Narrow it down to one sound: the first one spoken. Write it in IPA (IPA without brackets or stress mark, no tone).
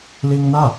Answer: l